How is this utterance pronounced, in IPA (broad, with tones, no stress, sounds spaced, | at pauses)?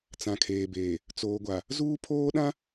t͡s ã˨ kʰ eː˨ b eː˨ | t͡s oː˨ ɡʷ a˨ | z uː˦ pʰ oː˦ ɗ ã˦